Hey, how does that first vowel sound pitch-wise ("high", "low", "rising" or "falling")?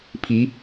rising